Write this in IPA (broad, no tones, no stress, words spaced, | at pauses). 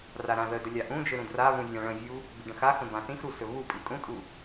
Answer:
raɾãðədə lʲaʔũd͡ʒɵ ɾũdraβũ vʲãɭə̃vʲu | biɖə̃xaxə̃ bãθĩxɾu sɵβupʼi kʼũtʼu